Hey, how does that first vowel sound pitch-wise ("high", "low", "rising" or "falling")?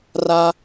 high